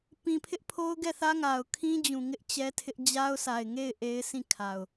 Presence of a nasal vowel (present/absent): present